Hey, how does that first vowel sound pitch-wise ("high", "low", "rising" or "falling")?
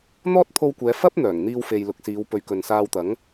high